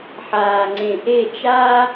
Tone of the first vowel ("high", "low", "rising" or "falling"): low